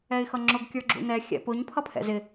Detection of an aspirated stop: present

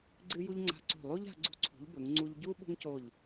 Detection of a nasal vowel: absent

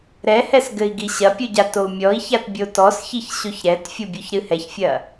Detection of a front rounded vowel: absent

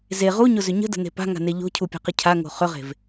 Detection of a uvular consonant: present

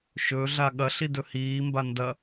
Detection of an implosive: present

